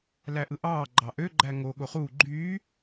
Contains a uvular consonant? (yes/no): yes